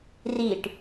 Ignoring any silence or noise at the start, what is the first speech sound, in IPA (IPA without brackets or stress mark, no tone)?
r